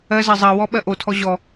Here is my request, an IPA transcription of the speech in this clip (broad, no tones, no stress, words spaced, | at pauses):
ɜzɜ zˤɜwɔ ɓɜʔotʰɔ ʑɔ